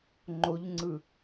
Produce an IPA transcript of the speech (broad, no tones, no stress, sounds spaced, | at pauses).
ŋ͡ǃ o ʎ ŋ͡ǀ ɯ